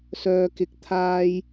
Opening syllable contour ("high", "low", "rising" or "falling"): low